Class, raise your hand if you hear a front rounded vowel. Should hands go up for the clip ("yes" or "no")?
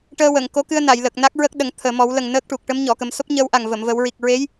no